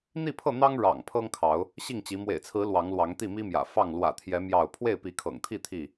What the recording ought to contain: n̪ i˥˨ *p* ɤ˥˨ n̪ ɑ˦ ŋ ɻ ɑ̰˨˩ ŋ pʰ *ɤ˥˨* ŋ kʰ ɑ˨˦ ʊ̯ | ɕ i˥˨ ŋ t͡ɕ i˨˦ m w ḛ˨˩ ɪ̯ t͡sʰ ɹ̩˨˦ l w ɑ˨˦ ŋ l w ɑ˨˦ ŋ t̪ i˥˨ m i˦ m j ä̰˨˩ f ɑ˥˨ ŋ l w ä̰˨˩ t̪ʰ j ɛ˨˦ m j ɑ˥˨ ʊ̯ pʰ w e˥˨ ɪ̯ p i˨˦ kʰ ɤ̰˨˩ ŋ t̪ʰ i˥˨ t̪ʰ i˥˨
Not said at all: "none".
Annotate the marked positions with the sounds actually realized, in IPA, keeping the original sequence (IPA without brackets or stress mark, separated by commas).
pʰ, ɤ˦